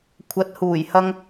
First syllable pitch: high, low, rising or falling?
rising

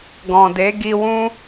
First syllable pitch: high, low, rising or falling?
low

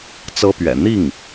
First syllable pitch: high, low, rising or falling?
high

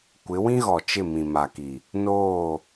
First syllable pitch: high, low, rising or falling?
rising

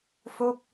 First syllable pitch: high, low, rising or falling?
falling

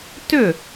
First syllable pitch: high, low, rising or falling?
falling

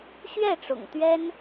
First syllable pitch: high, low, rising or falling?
falling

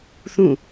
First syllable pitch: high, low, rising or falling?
falling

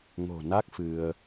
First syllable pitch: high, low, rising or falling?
low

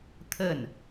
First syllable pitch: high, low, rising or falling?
falling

